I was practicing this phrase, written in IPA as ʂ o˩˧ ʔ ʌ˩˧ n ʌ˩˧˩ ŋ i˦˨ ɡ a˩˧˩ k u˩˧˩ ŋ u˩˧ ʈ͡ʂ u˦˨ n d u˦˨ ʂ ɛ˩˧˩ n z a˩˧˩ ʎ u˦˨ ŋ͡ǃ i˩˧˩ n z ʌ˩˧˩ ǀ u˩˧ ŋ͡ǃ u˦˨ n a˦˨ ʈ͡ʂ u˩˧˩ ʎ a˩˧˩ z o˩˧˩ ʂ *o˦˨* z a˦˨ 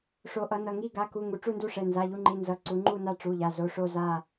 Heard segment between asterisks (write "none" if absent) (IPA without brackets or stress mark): o˦˨